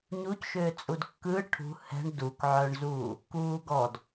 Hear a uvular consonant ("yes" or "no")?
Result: no